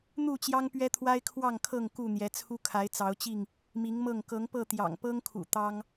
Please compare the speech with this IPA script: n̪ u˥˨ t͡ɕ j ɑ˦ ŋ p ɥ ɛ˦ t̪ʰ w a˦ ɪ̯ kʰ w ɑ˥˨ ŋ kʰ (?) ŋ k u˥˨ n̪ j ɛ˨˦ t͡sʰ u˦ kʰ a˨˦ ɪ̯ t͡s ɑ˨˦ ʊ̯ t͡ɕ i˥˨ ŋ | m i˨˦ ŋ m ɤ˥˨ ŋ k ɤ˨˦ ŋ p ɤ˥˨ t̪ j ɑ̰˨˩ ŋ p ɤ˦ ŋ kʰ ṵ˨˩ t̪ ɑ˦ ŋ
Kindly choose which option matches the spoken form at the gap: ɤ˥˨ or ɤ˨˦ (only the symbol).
ɤ˥˨